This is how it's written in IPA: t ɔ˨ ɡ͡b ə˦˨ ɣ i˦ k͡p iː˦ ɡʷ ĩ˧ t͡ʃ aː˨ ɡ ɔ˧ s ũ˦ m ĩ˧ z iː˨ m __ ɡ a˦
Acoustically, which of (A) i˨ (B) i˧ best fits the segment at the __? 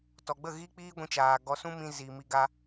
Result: B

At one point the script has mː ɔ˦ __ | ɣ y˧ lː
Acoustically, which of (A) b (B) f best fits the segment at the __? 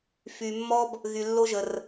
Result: A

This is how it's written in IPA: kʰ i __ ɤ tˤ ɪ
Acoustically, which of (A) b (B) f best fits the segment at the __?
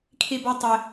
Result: A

